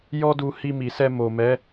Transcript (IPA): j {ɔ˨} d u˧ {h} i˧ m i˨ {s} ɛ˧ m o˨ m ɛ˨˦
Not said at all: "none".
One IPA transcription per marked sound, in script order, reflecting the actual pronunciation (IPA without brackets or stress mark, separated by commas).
ɔ˦, h, s